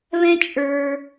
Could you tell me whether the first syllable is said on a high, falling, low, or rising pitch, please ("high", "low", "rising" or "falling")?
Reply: high